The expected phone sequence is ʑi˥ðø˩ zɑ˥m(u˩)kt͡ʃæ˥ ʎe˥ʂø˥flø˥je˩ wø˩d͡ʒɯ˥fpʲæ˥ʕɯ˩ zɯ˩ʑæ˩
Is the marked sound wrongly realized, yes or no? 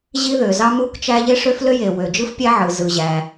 yes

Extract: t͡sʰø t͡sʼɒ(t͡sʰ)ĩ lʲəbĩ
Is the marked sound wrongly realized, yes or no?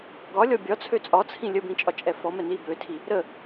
no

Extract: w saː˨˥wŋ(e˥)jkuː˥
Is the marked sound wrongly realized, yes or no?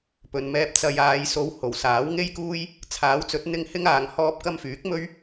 no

